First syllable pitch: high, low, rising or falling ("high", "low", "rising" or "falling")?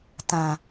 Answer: low